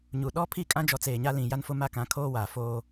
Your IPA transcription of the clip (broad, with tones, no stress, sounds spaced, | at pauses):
ɲ u˨ ɗ ɔ˦ pʰ i˦˨ kʼ ã˦ d͡ʒ ɔ˨˦ t͡s eː˨ ɲ a˦ l ĩ˨ j a˦ n f ʊ˦ m a˦ k ã˨˦ kʰ oː˦ w aː˨ f oː˦